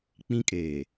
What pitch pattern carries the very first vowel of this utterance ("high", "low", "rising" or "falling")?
high